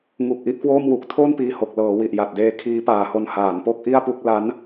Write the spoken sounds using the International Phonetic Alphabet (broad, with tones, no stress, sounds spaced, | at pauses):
ŋ u˨˩ k̚ ʔ i˦˥ ʔ k w oː˥˩ m w u˨˩ k̚ tʰ o˥˩ n p iː˧ h o˨˩ k̚ l ɤː˩˦ w i˨˩ ʔ j a˨˩ t̚ d eː˦˥ kʰ iː˦˥ p aː˨˩ h o˧ n h aː˩˦ n p o˥˩ k̚ ʔ i˥˩ a̯ p u˥˩ k̚ l a˦˥ n